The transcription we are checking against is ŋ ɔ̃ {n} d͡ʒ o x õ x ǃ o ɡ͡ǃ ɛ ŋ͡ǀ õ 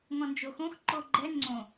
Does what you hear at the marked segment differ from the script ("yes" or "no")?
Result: no